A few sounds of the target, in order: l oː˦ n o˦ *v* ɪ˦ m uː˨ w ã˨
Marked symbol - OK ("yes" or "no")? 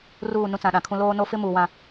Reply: no